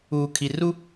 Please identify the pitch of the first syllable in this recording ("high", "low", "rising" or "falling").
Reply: low